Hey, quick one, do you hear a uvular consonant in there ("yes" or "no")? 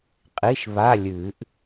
yes